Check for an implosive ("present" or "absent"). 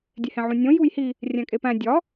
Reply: absent